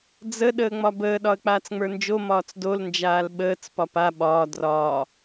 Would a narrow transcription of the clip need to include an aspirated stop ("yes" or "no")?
no